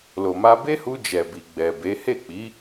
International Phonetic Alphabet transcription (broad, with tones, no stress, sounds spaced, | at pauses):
l o˨ m a˧ b e˦ h u˧ d͡ʒ ɛ˨ b i˨ ɡ͡b ɛ˨ b e˨˦ h e˦˨ k͡p i˨˦